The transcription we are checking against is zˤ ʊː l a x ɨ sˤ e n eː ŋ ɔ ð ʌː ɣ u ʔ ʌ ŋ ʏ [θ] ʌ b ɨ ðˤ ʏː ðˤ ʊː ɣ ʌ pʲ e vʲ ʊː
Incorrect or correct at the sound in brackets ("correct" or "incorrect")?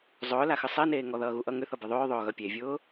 correct